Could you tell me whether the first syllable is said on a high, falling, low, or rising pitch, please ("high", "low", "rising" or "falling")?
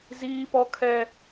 high